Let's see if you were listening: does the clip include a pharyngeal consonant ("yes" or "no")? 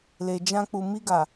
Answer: no